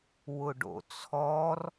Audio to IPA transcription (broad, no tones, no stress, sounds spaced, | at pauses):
w ʊ ɖ o̰ t͡sʰ ɔ r